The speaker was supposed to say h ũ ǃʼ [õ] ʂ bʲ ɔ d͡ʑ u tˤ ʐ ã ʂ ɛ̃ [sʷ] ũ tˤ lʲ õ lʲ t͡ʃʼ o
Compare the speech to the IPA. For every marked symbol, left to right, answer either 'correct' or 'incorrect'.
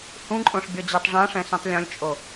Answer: correct, incorrect: s

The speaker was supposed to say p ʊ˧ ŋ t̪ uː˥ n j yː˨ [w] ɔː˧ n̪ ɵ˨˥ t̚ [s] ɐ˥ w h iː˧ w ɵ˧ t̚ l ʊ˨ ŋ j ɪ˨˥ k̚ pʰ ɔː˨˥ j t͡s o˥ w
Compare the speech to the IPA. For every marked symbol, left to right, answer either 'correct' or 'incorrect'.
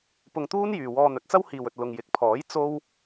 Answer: correct, incorrect: t͡s

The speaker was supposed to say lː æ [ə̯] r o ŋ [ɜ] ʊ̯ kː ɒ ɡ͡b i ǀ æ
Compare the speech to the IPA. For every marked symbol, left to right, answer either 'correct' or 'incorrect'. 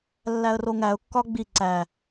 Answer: correct, incorrect: æ

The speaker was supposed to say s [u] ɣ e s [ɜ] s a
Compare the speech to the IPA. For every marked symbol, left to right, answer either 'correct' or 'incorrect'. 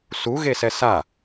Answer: correct, incorrect: ɛ

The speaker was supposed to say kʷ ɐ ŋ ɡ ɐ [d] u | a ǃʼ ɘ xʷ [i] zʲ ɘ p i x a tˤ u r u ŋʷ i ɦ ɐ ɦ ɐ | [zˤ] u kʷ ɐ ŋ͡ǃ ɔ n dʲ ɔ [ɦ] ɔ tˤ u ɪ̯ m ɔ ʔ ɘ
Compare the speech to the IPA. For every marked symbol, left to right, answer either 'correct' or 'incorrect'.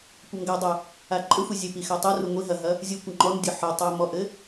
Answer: incorrect: dˤ, correct, incorrect: zʲ, incorrect: ħ

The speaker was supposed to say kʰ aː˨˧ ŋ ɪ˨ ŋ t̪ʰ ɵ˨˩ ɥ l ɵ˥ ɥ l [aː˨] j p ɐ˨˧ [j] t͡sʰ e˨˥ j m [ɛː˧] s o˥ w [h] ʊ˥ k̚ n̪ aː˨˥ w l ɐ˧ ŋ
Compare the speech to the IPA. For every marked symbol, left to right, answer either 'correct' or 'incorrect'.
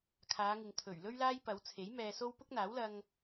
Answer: incorrect: aː˥, incorrect: w, correct, incorrect: p

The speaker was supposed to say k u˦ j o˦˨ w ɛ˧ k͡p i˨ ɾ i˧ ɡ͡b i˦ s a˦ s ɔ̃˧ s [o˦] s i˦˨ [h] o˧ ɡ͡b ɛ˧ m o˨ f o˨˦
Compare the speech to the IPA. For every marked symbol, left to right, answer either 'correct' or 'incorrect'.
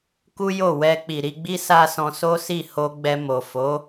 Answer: correct, correct

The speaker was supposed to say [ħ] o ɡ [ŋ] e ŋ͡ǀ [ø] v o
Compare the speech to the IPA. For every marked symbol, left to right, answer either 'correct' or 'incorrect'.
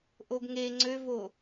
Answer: incorrect: ʔ, correct, correct

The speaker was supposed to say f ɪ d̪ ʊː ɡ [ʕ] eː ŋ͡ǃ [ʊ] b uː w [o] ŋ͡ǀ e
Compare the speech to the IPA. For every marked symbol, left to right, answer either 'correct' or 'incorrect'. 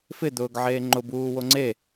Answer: correct, correct, correct

